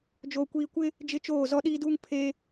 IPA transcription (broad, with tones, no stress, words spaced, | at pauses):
d͡ʒoː˨kʷiː˨kʷɪ˦ | d͡ʒɪ˦t͡ʃoː˦˨ zɔ˦ɗiː˦duː˦ŋ pʰe˦